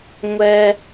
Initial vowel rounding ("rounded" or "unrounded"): unrounded